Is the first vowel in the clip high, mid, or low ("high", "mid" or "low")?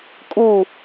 high